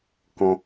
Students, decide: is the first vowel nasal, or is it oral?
nasal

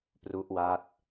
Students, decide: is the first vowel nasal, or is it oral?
oral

